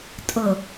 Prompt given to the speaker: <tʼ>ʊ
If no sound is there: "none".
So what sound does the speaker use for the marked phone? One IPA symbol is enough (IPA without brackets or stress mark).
tʼ